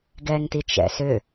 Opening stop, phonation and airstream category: plain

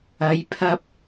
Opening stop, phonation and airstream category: aspirated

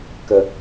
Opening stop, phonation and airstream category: plain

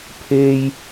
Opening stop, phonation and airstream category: aspirated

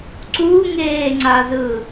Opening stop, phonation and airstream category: click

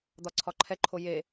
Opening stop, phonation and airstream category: plain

